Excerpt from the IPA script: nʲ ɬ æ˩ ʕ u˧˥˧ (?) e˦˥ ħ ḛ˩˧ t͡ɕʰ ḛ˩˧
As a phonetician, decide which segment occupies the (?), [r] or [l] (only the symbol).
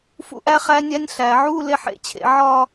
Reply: l